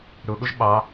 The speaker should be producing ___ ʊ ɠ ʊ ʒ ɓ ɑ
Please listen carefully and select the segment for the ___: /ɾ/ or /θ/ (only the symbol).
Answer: ɾ